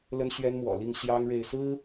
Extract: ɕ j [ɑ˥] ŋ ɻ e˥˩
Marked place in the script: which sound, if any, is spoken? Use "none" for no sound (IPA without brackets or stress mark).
ɑ˥